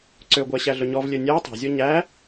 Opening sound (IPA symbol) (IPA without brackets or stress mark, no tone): ǀ